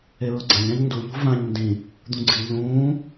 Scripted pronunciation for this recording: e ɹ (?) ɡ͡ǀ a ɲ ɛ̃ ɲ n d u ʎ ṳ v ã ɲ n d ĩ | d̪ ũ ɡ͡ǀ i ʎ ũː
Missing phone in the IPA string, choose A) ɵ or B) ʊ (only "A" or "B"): B